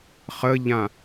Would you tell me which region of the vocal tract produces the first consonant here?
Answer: uvula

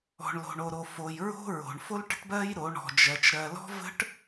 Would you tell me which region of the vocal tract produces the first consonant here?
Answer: retroflex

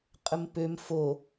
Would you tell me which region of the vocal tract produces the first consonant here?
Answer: uvula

